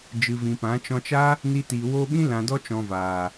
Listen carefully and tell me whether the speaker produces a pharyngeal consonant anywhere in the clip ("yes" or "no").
no